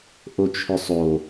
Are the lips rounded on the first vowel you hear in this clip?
yes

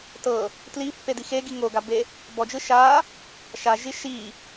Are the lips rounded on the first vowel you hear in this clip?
no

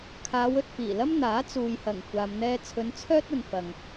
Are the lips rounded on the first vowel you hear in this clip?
no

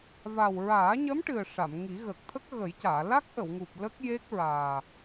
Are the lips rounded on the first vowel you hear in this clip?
no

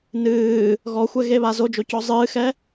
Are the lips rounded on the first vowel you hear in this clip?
no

